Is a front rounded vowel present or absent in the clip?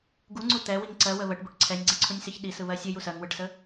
absent